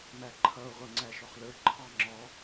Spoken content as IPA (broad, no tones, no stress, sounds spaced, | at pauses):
m æ ǃʰ ʌ o̯ ʁʷ ʌ ŋ͡ǀ æ ʃ ɔ χ l ə˞ ǃʰ ɑ ŋ͡ǁ ɔ